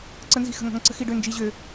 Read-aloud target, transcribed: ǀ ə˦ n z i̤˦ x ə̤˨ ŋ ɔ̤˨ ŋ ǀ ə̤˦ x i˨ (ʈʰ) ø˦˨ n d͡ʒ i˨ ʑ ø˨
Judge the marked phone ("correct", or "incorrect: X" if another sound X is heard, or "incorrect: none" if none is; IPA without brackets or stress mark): incorrect: ɖ